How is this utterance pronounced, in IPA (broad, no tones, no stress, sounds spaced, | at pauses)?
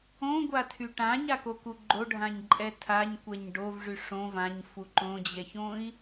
õ ɡʷ a tʰ y ʈ ã ɲ a k o k u ɡ͡ǃ o ɖʱ ã ɲ ǃʼ ɛ tʰ a ɲ kʷ ɛ ɲ ɖ o v ʐ y ʂ õ v ã ɲ f u ǃ õ d͡ʑ ɛ ç õ i̯